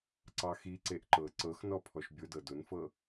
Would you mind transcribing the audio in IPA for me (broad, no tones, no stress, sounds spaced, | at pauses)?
ǀ ɑ x i ǀ e ʔ ǃ ɤ ǀ ɤ x n ɔ pʰ ɔ ʃ bʲ ʊ d ɤ d ʊ n f ɤ